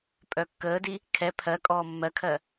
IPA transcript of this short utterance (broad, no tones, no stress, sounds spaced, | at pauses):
pʼ œ kː əː d i | kʰ ɛ pʰ ɜ kʼ ɔː mː ɜ kʰ ɜ